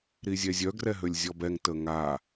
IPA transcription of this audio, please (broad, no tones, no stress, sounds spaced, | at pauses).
ɾ i zʲ ɛ zʲ œ ɡ r ɛ ɦ ø lʲ zʲ ɔ b ɛ ŋ t ə ŋ a